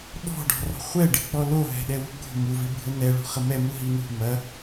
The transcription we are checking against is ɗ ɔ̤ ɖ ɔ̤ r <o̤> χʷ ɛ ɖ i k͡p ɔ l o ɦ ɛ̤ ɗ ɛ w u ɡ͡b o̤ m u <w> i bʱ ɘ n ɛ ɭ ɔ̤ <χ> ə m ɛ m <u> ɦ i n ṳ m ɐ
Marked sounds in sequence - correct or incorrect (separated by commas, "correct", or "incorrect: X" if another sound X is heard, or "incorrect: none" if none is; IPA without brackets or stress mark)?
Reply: incorrect: ɔ̤, incorrect: v, correct, correct